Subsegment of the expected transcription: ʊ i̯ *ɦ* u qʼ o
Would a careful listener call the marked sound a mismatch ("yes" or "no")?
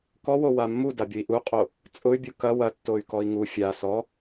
yes